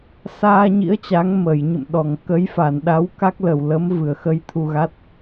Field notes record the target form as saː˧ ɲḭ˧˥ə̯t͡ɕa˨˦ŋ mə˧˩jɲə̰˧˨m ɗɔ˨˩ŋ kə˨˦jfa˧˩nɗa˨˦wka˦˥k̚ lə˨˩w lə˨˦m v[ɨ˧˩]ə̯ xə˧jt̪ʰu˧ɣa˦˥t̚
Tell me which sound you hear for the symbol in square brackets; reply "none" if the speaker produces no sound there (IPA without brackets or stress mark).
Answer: ɨ˧˩